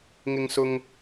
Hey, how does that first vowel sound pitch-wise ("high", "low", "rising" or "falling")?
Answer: high